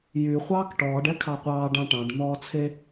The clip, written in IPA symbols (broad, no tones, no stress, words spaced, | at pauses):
jyχʷɑːk ʈɔːɖɛkʰɑ qʷɑːɖ ɑ̃ʈɑ̃ɖ n̪ɔːt͡sʰe